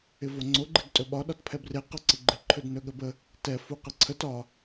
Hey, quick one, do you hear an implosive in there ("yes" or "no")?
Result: yes